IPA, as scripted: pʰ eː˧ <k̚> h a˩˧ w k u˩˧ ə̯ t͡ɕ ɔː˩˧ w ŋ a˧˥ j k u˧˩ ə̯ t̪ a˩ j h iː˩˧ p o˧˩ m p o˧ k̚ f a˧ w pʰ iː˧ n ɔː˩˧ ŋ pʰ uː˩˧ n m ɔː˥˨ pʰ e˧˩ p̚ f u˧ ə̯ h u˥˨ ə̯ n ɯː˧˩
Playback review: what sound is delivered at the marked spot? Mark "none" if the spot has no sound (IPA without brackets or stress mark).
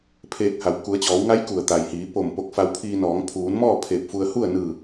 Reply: k̚